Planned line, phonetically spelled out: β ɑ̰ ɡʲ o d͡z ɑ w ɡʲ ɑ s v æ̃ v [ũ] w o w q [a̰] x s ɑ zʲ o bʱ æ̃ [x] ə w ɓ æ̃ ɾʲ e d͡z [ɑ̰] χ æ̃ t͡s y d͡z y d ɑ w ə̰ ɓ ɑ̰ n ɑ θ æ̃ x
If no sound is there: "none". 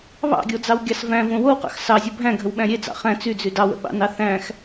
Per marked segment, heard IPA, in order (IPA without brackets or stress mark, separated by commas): õ, ɑ̰, ɡʱ, ɑ̰